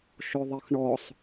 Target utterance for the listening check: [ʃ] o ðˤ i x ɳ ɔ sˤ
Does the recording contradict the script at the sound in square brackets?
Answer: no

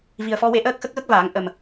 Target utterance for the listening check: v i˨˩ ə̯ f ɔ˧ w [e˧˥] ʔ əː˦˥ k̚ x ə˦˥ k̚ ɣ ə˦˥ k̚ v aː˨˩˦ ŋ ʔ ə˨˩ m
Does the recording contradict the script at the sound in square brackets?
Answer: no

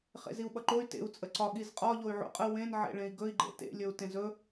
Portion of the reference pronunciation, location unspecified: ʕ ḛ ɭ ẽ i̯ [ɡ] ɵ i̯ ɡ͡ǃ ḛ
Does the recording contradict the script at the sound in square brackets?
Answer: no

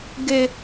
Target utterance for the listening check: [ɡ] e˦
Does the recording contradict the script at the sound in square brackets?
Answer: no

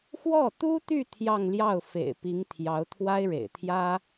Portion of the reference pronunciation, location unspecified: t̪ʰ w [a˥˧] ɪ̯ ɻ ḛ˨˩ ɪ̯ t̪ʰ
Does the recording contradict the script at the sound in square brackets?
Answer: yes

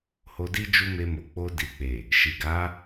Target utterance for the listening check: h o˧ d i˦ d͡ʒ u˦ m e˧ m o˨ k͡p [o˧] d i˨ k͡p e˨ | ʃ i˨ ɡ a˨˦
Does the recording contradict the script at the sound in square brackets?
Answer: no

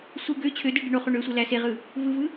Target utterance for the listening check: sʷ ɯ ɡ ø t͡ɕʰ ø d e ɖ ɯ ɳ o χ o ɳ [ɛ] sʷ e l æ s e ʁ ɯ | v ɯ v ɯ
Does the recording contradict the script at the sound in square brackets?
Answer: yes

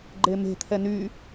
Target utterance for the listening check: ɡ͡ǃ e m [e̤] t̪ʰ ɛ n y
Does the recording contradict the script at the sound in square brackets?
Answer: no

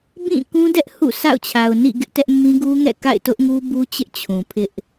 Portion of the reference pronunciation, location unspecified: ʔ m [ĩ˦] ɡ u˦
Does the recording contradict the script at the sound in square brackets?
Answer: no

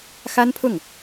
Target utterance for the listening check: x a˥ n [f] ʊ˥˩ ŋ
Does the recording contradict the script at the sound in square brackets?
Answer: yes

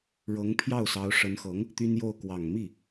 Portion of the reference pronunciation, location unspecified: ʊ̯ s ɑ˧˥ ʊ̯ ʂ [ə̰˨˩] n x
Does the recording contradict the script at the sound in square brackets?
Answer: yes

